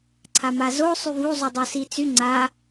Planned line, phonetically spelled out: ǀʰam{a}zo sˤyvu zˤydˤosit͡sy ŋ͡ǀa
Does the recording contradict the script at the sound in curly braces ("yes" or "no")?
no